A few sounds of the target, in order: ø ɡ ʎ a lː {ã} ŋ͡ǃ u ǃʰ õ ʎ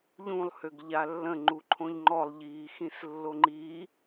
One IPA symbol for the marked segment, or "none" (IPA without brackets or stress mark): ə̃